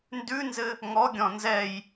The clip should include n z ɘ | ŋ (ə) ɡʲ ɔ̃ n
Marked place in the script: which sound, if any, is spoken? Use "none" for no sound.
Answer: ɔ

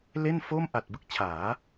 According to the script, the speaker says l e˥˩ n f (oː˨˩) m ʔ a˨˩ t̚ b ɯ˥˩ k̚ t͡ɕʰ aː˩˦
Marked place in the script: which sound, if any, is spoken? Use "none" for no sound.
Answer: oː˥˩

